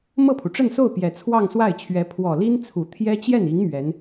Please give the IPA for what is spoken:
m ɤ˥˩ pʰ u˩ ʈ͡ʂ ə˥˧ n s o˥˩ ʊ̯ p j ɛ˨˩ t͡sʰ w ɑ˥˧ ŋ s w a˥˩ ɪ̯ t͡ɕʰ ɥ ɛ˧˥ pʰ w ɔ˨˩ l i˥ n t͡sʰ u˨˩ t̪ʰ j ɛ˥ t͡ɕ j ɛ˥˩ n i˧˥ ŋ m ɥ ɛ˧˥ n

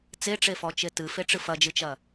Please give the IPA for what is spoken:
t͡s e ʈ͡ʂ e f ɔ t͡ʃ e t ɨ f e ʈ͡ʂ ɨ f ɐ d͡ʒ ɨ t͡ʃ ɐ

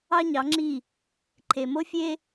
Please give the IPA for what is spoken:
ɑ˦ ɲ ɑ˨˦ ŋ͡ǁ i˦˨ | ǃʰ e˨ m o˦ fʲ e˦

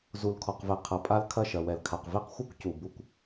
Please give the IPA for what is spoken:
z u˨ l kʰ ɔ˨ q v ɛ˨ qʰ ɐ˨ pʼ a˦ l kʰ ɐ˦˨ ʃ ɐ˨ w ɛ˨ l kʰ a˨ q v e˦ q xʷ ɨ˦ kʷ c u˨ b u˦ kʷ

